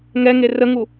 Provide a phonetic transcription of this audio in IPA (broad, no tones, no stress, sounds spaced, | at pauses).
ŋ ɛ ŋ e r ə ŋ u